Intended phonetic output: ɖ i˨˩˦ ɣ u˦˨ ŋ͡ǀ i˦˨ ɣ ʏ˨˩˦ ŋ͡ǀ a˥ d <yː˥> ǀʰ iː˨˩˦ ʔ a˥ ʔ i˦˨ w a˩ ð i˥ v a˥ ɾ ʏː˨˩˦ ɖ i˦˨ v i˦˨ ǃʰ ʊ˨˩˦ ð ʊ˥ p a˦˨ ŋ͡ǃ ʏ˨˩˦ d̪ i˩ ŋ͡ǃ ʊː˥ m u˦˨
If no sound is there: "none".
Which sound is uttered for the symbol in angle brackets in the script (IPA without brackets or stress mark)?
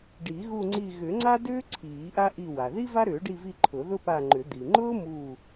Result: ʏː˥